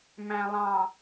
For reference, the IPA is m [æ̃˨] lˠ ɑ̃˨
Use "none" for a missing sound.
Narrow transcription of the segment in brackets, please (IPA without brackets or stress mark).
æ̃˨